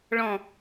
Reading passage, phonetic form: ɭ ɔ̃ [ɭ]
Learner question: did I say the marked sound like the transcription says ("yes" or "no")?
no